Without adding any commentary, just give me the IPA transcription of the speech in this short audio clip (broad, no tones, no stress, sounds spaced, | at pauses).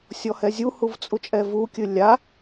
sʲ ɔ h ɛ zʲ u h u v t͡sʼ u t͡ʃʼ ɛ v u kʲ ɨ lʲ a